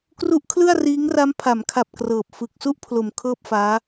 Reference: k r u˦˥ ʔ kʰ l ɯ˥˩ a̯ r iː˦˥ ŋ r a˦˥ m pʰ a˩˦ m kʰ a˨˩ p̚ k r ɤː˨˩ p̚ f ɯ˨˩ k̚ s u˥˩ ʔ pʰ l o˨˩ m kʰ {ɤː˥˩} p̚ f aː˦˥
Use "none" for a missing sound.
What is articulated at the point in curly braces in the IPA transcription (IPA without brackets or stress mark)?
ɤː˥˩